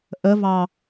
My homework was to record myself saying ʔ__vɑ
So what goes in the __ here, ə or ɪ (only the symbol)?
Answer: ə